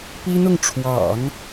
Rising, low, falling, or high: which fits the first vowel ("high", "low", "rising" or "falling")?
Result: high